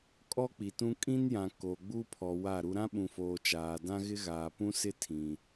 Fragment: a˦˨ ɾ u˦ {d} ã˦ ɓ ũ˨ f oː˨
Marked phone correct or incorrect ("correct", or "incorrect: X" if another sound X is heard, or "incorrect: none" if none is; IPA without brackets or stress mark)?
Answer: incorrect: ɾ